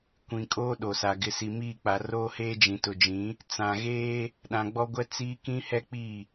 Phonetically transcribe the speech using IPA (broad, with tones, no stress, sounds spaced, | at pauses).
kʷ ĩ˨ kʼ oː˦ ɗ o˨ s a˨ ɡ ɪ˨ s i˨ m iː˦˨ k͡p a˨ r oː˦ h eː˦ d͡ʒ ĩ˨ t ʊ˨ d͡ʒ ĩ˨˦ | t͡s ã˨ ɣ eː˦ | ɗ ã˨ ɡ͡b ɔ˦ ɡʷ ɛ˦ t͡s iː˦ k ĩ˦ h ɛ˦ k͡p i˦˨